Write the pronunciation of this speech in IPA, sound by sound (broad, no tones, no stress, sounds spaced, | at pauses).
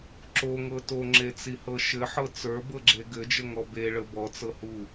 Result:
ǁ o ŋ ɤ t o ŋ͡ǁ e t͡s i h ɤ ʃ ɘ ħ ɤ t͡s ə˞ b ɤ ɡ͡ǁ e ɡ ɘ d͡ʒ ə ŋ ɔ b e ɭ ə b ɔ t͡s ɤ h u